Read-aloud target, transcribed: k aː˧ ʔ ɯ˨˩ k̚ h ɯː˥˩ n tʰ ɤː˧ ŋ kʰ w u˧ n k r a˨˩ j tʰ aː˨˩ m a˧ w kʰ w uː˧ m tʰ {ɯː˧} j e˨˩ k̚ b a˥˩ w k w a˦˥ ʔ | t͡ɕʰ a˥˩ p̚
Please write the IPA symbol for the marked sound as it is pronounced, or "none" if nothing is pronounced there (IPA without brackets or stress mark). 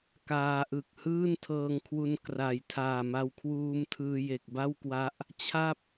ɯː˧